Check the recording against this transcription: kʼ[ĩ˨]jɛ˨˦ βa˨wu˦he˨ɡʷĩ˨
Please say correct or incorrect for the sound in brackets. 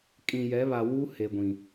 correct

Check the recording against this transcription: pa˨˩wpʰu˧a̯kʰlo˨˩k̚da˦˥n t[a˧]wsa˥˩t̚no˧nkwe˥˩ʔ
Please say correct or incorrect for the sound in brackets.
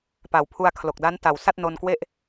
incorrect: a˨˩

